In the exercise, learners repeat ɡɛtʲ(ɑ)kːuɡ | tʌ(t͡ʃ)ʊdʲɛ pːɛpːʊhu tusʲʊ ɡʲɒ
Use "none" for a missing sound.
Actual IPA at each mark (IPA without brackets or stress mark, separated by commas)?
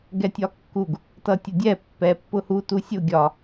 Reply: ɒ, tʲ